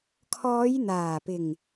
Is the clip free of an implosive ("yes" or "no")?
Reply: yes